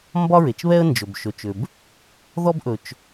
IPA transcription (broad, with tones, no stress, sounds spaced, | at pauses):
m b ɒ˥ ɹ e˩ t͡ʃ β ɛ˥ ə̯ n d͡ʒ ɵ˩ b ʃ ɵ˩ t͡ʃ ʏ˩ b | ð ɔ˥ b ʔ ɵ˩ t͡ʃ